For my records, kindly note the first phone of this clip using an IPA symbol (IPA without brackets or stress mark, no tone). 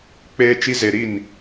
k͡p